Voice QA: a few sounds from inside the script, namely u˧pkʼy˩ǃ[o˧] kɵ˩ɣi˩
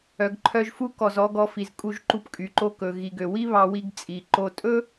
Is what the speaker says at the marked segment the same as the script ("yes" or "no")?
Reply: yes